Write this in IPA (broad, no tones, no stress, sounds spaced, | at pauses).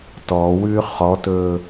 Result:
t ɔ w ʉ χ ɔ t ɵ